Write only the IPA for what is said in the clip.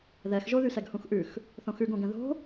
ð ɛ x ʒ o ð y s ɛ ɡ h ũ x ʔ ʉ x | θ õ x ʉ ɡ õ ɡ ɛ̃ ð o̤

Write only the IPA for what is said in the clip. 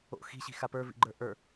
o̰ x i̤ ɕ i̤ x a p ə˞ v ḭ ɡ͡ǃ ə˞ ʔ ə˞

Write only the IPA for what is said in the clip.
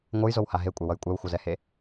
ŋʷ ɯ j z o w h a ɦ e kʷʼ e w ʌ j kʷʼ ɛ w xʷ ʌ z ɛ h e

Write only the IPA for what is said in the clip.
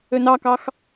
ø n ɑ k ɑ x

